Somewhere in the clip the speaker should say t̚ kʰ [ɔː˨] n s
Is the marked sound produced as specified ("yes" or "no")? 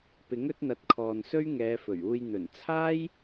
yes